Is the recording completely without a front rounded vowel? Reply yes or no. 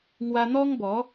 yes